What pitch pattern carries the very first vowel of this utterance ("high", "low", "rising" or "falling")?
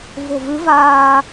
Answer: low